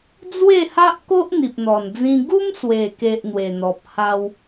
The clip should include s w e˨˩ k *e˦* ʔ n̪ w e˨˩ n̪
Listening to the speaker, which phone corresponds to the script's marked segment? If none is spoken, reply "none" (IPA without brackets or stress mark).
e˨